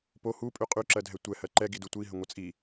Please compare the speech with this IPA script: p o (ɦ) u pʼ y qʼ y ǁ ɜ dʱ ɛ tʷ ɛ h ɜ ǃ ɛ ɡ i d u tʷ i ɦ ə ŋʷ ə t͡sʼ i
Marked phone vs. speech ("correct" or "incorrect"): incorrect